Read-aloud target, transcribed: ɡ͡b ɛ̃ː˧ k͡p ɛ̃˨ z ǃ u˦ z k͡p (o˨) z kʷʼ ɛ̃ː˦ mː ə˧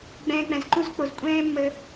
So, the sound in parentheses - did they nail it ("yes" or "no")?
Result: yes